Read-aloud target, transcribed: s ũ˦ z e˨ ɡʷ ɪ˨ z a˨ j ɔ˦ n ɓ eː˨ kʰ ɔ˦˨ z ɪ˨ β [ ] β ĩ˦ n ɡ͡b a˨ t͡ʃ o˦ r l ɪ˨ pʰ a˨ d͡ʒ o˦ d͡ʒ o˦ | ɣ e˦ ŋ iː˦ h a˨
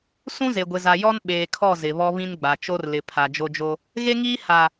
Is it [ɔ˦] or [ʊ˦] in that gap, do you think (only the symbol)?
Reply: ɔ˦